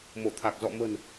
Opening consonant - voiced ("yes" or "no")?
yes